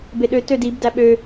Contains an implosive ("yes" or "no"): yes